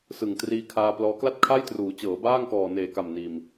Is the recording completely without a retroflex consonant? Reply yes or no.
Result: yes